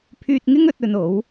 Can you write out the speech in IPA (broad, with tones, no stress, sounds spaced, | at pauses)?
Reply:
pʰ yː˧ t̚ ŋ ɪ˥ ŋ ɵ˧ t̚ ɵ˧ n o˨˥ w